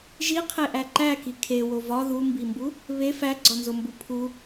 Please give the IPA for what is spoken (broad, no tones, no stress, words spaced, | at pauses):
ʒiqʰeʔæ ǃæki kʰewo vɒ ðumbimbu | βe fæɡ͡ǀɒnzombu pʰu